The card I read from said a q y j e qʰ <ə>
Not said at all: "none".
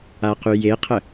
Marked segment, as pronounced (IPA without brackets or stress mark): ə